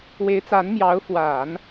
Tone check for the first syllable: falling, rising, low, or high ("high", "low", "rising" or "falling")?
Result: rising